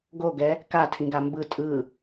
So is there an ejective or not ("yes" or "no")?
yes